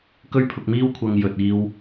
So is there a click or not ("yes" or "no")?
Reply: no